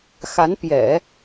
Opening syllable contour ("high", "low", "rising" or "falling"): rising